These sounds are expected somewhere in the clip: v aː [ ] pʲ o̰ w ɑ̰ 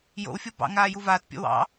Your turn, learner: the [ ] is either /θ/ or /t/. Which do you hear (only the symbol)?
t